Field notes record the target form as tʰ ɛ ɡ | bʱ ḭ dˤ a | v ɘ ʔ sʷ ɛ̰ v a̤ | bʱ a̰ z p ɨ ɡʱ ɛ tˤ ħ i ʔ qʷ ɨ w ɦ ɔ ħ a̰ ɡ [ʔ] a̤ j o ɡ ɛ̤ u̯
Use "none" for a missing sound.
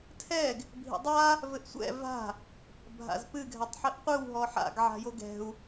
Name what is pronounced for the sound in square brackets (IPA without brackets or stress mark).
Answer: ʕ